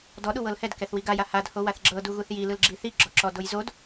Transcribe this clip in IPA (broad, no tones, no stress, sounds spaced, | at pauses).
d ɔ ɗ u w ɤ l h ɛ d k ɛ θ w i ɡ a j a h a d h o w a θ ɡ͡ǁ ɤ d u ɣ u θ j i l ɯ l ɡ͡ǁ i θ i ɡ͡ǁ ɔ ǁ ɔ d o j z o d